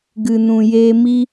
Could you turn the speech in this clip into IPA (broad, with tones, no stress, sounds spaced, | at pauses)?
ɡ ɨ˨ n ũ˨ j eː˧ m i˧